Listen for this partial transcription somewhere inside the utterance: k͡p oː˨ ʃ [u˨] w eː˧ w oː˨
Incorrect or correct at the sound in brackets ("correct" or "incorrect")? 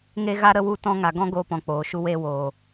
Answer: incorrect